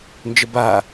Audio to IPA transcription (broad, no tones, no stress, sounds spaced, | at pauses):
n d͡ʒ ə b a